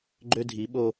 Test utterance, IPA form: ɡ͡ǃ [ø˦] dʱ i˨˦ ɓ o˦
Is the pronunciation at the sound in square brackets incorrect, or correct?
correct